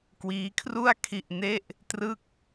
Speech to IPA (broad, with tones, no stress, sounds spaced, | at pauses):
k w iː˦˥ kʰ r u˥˩ a̯ kʰ i˥˩ ʔ n e˥˩ ʔ | t r ɯ˥˩ k̚